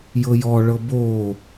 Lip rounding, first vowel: unrounded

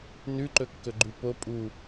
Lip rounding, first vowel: rounded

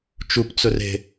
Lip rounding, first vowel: rounded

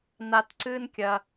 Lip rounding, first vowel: unrounded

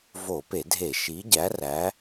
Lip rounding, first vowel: rounded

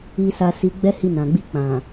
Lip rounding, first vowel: unrounded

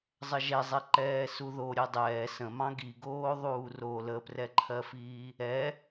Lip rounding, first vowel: unrounded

